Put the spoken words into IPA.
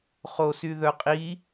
χ o s y ð œ qʼ i

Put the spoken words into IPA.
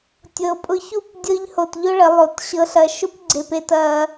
tʲ ɤ˨ pʼ ʊ˧ ç u˦˨ p dʲ ɤ˦ ʎ h o˧ t ʎ ʊ˦ ɭ ə˨˦ lˠ o˧ t ɕ ɤ˧ ɬ ɐ˧ ʃ ʊ˦ p ɡ͡ǀ e˧ p e˧ t ɐ˧

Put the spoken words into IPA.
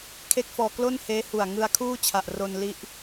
kʰ e˥˩ k̚ f ɔː˧ k l o˥˩ n h eː˦˥ h u˨˩ a̯ ŋ ɯ˧ a̯ kʰ uː˥˩ t͡ɕʰ a˨˩ ʔ r o˧ n l i˦˥ ʔ

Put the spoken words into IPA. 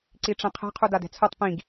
ǀ i ʈ͡ʂ ɛ̃ qʰ ɛ̤ qʰ u d a d ɛ̤ t͡sʰ o tˤ p ĩ ɡ

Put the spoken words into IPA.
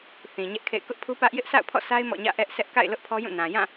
θ ĩ˨ ɲ ɛ˦ ʔ kʰ ḛ˦˨ ɪ̯ k ʊ˦ ʔ pʰ u˦ p ä˦ ʔ j ɪ˦ ʔ sʰ a̰˦˨ ʊ̯ pʰ ɔ̰˦˨ sʰ a˦ ɪ̯ m ɔ̰˦˨ ɲ ä̰˦˨ ʔ ɛ˦ ʔ sʰ ɛ˦ ʔ k a̰˦˨ ɪ̯ l ʊ˦ ʔ pʰ ɔ˦ j ũ˦˨ n ã˨ j ã˦˨

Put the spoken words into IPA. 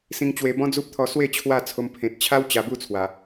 s ĩ˧ ŋ t͡ɕ w e˧ b ɔ̃˦ d͡z u˦ p̚ t̪ʰ ɔ˧ s w e˥˧ t͡ɕʰ w a˥˧ t͡sʰ o˧ m pʰ ẽ˨ t̚ t͡ɕʰ a˦ w t͡ɕ a˧ b u˥˧ t͡sʰ w a˨˩

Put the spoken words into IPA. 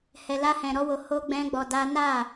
h ɛ˨ l a˧ h ɛ̃˨ ɾ ɔ˧ w o˨ h o˧ ɡ͡b ɛ̃˦ ɡ͡b ɔ˧ d a˦ n a˦˨

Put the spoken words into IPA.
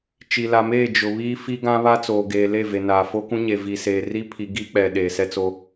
t͡ʃ i˨ l a˨ m eː˦˨ d͡ʒ ʊ˨ β iː˦ f i˦ ɡ ã˦ β a˦ t͡s oː˨ ɡ eː˨ l e˦˨ v e˨ n aː˨ f o˦ k ũ˦ ɲ e˨ v i˨ s eː˨ r i˦ pʰ i˨ ɡ i˦ k͡p ɛ˨ ɗ eː˨ s ɛ˦ t͡s o˦

